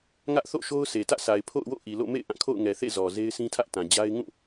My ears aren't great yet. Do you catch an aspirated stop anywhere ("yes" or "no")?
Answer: yes